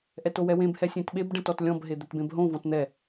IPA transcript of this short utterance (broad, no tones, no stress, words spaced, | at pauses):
ʔɛtowɛwẽb hɛsʲẽtɓeb ɖɛ̃tɔtlʲɔ̃b ɦed̪ɛtbẽbɦõ vɔ̃tn̪ɛ